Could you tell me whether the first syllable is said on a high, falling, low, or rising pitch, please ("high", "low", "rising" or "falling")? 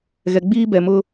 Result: low